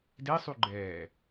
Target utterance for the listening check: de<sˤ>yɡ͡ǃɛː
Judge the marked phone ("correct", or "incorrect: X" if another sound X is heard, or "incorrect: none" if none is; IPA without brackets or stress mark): correct